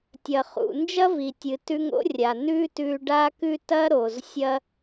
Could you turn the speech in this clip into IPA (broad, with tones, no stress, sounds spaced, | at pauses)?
tʲ ɐ˩ χ ṵ˩ n d͡ʒ ɐ˥ v i˩ tʲ ɨ˩ t ʉ˧ ŋ o̰˥ rʲ a˩ n ʉ˥ t ʉ˧ ɖ a˥ k ʉ˥ t ɐ˥ ɾ o˩ z sʲ ɐ˥